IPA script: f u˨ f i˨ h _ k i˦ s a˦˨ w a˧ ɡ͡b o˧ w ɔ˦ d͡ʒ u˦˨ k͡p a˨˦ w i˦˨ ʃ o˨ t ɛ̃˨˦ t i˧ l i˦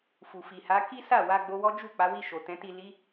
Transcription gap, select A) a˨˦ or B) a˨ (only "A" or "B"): A